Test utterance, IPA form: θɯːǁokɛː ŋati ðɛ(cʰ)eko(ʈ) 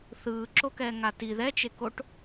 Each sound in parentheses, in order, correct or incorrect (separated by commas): incorrect, correct